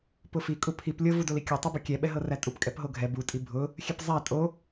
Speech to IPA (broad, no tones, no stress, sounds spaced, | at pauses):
p ʊ f i kʼ u pʰ i p lʲ ɤ v u d o l i kʲ ʌ tˤ i b o kʲ ɛ ɓ ɛ ɦ ɤ r æ tʼ u p kʼ ɛ p ɦ o ɡʱ ɛ b u tʼ i bʱ ʊ | xʲ ɛ p zˤ æ tʼ o